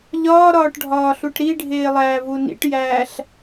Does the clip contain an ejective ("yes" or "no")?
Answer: no